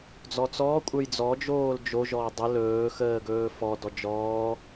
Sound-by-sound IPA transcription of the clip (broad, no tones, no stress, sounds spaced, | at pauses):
d͡z ɔ t͡s ɔː kʷʼ ə˞ j d͡z ɔ d͡ʒ oː l d͡ʒ o ʒ ɔː dˤ ə l ɵː x əː ɡ ɵː f ɔ d ɔ d͡ʒ ɔː